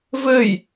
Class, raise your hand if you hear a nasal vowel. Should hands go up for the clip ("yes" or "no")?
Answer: no